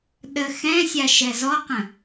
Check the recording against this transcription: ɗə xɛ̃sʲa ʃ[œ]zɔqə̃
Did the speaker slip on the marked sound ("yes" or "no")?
yes